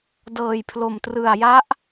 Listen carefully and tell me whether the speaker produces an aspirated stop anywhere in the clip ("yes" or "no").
yes